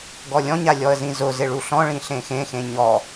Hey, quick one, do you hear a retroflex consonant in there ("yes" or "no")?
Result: yes